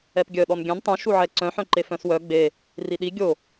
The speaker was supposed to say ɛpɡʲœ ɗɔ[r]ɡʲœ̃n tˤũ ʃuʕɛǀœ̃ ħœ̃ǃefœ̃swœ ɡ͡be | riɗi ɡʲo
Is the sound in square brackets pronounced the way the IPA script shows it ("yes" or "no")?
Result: no